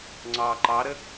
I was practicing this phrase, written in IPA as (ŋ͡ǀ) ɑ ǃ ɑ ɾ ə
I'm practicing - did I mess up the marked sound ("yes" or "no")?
no